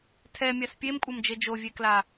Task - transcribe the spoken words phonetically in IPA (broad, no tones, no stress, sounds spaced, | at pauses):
tʰ ɛ mʲ a s pʲ e m kʷʼ ʌ m d͡ʒ e d͡ʒ o vʲ e k l a